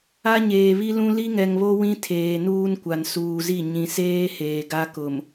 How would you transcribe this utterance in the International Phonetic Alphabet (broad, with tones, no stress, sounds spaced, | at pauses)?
a˦ ɲ eː˨ β i˦ l ũ˦ l i˦ ŋ ɛ˨ ŋ β o˦ w ĩ˦ tʰ eː˨ n uː˦ n kʷ a˨ n s uː˨ z i˦˨ ɲ ĩ˨ s eː˦ h eː˨ ɡ a˦ k ʊ˨ m